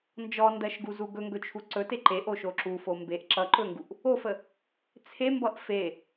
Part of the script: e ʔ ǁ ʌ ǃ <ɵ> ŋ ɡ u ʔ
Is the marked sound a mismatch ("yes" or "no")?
no